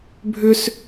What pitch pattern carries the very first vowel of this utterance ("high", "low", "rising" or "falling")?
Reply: high